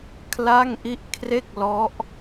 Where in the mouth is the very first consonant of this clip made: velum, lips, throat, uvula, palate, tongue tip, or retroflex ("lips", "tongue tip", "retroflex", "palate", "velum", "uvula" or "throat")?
velum